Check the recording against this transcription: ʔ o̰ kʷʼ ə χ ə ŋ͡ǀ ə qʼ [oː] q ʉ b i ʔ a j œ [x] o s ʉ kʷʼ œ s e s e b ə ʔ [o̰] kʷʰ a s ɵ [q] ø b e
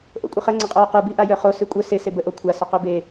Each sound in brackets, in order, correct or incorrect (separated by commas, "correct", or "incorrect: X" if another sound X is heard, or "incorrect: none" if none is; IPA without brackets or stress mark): correct, incorrect: χ, incorrect: o, correct